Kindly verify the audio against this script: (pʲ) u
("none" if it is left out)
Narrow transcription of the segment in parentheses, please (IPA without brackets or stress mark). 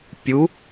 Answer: pʲ